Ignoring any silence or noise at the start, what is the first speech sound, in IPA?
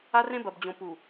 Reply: a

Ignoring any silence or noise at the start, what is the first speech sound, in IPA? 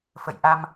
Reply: f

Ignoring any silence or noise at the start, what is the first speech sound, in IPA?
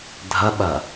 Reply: dʱ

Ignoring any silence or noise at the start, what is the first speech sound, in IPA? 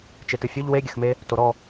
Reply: t͡ʃ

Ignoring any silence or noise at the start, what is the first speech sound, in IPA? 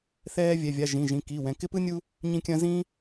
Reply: θ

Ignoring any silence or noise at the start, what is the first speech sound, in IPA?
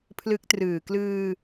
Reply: pʰ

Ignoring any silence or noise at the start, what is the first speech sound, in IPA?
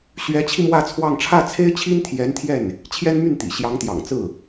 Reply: ɕ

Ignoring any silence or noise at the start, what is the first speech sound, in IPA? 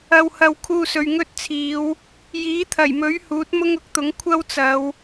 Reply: ɐ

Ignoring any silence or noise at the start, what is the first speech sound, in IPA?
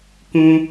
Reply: k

